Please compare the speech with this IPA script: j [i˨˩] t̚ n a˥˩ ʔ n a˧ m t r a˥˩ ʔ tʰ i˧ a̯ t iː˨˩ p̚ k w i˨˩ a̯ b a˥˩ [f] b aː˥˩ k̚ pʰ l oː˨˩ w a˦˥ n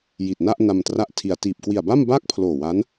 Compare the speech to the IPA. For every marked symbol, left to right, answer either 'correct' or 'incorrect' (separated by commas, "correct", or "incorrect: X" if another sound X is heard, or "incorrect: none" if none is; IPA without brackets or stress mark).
correct, incorrect: m